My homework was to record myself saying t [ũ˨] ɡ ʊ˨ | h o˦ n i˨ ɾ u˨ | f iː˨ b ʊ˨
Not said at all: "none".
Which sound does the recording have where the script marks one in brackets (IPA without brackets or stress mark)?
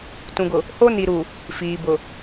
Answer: ũ˨